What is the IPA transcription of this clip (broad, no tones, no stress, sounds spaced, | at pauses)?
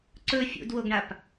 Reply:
ǀ ɵ fʲ ṵ d w o ɡ ɳ a p